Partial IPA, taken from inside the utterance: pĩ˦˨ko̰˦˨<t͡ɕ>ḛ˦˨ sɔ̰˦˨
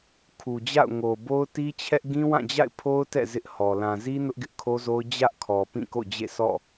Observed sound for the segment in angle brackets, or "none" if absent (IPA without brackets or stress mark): d͡ʑ